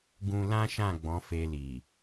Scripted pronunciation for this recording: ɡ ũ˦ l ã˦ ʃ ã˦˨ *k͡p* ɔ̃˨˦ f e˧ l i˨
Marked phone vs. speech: incorrect: ɡ͡b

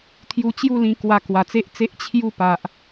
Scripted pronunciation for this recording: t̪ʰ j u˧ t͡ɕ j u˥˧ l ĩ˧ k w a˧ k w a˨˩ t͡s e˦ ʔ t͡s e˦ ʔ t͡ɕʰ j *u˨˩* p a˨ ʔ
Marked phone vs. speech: incorrect: u˥˧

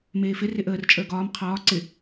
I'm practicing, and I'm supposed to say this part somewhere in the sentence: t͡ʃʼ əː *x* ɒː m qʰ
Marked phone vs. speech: incorrect: ɡ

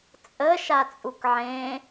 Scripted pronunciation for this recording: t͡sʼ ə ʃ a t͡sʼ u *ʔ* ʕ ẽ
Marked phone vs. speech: incorrect: k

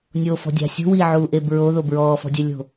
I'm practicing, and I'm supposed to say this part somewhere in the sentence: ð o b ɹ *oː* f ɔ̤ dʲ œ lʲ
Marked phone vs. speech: incorrect: ɔː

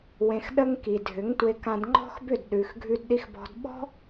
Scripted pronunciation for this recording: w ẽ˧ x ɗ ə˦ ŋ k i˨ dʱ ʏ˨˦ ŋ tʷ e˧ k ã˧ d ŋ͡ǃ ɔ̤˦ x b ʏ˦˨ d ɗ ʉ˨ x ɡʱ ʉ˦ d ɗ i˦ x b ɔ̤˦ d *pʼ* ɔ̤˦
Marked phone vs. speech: incorrect: ɓ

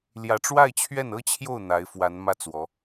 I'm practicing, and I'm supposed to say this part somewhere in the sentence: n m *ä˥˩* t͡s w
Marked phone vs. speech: correct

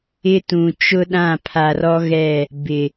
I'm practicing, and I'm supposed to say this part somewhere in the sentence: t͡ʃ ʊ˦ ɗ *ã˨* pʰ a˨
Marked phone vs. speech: incorrect: ã˦˨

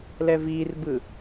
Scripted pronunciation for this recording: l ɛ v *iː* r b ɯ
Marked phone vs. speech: correct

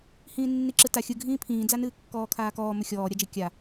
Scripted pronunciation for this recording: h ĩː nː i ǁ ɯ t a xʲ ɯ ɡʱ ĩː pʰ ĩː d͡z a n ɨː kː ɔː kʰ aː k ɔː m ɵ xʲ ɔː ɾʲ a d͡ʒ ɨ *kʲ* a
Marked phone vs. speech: correct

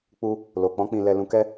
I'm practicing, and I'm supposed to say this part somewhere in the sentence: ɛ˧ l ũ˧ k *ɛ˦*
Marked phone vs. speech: correct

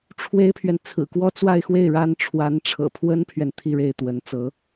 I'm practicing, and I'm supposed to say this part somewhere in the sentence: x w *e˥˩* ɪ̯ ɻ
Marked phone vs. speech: correct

